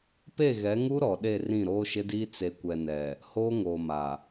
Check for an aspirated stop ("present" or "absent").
absent